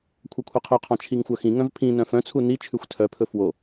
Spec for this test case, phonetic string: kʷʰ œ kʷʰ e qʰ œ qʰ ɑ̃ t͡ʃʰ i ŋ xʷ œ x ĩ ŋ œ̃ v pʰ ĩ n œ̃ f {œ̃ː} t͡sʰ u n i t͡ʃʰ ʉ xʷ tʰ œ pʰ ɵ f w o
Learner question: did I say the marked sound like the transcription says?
no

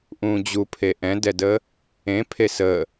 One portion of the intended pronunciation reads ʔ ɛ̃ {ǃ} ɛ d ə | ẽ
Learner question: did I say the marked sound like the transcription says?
no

